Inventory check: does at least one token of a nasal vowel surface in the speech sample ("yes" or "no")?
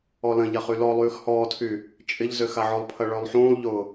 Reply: yes